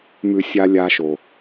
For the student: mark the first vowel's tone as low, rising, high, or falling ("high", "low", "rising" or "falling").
low